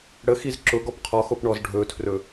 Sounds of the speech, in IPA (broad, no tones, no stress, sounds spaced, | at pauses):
ɽ ə x i z ǁ ʊ ɡ ɔ p qʰ ɔ x o p ɳ ɔ z ɖʱ ɵ tʰ r ɵ